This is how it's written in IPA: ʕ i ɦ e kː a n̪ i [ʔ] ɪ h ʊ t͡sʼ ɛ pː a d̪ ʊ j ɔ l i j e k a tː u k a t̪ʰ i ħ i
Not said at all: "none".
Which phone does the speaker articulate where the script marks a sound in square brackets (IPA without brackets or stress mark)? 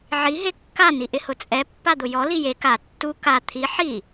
ʔ